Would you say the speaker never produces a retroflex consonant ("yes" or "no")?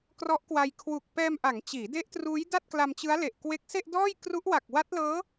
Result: yes